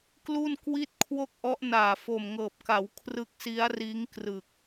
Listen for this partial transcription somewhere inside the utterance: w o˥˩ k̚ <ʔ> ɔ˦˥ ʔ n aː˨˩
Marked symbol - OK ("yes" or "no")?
yes